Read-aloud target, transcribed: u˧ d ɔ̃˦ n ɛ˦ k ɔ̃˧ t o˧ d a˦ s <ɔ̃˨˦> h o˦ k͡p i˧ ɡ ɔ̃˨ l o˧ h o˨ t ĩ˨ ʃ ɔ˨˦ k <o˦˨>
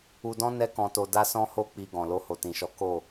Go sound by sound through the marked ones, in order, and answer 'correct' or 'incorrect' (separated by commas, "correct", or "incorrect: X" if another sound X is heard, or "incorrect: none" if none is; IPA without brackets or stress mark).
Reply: incorrect: ɔ̃˦, correct